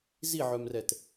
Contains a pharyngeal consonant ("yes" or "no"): yes